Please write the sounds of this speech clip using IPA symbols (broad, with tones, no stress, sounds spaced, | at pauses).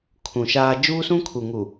kʰ ũ˨ ʃ aː˦ d͡ʒ uː˦ s ũ˦ kʰ u˨ ŋ u˨